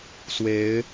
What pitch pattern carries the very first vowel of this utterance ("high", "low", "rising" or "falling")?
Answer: rising